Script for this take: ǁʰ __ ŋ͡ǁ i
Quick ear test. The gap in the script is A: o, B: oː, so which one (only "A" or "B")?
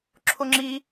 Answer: A